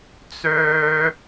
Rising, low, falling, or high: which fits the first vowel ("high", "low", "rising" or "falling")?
high